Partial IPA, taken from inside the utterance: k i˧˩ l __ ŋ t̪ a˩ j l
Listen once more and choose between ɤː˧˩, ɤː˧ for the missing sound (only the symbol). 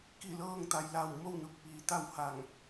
ɤː˧